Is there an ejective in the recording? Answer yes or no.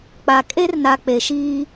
yes